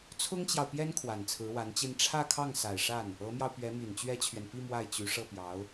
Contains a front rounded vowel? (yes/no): yes